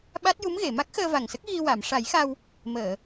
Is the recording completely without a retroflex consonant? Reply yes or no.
no